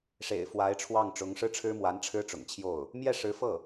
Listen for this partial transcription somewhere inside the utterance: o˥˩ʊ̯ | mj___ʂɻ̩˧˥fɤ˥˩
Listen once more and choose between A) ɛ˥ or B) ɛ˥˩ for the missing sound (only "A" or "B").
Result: B